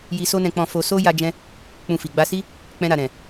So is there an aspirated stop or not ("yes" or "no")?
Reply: no